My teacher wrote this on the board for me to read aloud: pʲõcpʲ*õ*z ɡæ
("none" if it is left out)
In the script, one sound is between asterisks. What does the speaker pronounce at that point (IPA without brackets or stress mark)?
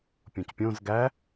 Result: õ